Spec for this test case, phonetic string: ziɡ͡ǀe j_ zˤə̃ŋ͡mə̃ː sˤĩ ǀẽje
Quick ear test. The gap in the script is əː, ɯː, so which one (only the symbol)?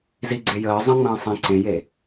əː